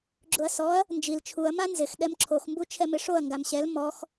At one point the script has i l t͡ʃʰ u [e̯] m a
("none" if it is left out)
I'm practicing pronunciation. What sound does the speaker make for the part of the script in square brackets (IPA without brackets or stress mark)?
ɐ̯